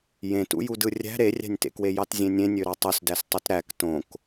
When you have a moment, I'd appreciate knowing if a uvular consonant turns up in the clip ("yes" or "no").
no